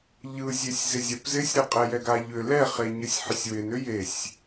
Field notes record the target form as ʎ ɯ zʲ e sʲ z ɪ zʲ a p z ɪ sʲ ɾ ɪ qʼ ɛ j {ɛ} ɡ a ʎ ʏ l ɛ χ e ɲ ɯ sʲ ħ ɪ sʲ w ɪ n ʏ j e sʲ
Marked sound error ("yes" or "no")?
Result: no